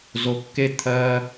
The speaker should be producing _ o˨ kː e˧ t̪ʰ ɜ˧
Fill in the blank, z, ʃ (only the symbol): z